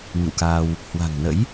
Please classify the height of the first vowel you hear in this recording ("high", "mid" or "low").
high